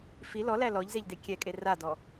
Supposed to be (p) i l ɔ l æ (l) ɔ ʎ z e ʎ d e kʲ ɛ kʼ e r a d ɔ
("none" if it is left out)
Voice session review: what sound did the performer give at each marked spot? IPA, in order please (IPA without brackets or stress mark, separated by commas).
f, l